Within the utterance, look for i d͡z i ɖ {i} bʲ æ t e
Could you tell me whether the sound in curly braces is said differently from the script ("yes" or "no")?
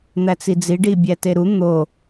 no